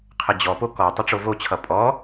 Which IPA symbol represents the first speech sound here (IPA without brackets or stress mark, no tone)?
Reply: qʰ